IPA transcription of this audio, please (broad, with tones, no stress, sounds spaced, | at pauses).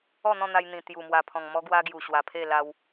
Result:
ɔ˥˧ n̪ ɔ̃˥˧ n̪ a˧ j n̪ ĩ˨˩ t̪ j u˨˩ m w a˨˩ pʰ ɔ̃˨˩ ŋ m ɔ˦ ɡ w a˦ ɡ j u˨˩ ɕ w a˨˩ pʰ e˥˧ l a˧ w